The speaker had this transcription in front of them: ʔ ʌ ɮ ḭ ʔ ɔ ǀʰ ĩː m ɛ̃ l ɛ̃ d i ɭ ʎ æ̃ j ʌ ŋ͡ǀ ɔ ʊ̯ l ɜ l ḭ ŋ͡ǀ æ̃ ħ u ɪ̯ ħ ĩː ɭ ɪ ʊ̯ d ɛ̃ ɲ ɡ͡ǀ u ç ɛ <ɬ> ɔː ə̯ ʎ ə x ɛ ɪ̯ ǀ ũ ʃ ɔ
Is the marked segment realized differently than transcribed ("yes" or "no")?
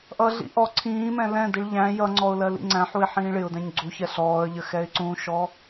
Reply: no